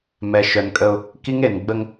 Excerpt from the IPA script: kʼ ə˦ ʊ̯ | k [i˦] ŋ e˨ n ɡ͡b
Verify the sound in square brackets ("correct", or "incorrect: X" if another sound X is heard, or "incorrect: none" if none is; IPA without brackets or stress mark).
correct